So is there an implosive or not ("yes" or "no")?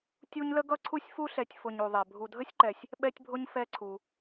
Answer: yes